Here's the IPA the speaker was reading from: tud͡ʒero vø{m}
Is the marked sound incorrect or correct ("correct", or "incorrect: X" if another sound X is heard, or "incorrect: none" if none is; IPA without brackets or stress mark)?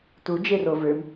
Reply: correct